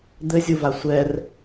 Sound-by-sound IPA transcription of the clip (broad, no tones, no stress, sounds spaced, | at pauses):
d̪ ɘ zʲ u v a sʷ ɛ r